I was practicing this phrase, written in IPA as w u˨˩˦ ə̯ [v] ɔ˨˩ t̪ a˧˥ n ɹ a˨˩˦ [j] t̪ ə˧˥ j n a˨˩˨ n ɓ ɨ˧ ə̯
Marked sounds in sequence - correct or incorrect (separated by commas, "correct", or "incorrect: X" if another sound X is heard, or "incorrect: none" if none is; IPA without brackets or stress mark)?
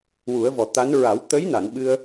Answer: correct, incorrect: w